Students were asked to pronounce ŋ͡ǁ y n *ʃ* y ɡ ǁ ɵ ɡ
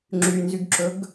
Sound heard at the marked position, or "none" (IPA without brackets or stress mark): z